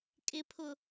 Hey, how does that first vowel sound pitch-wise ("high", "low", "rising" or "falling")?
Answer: low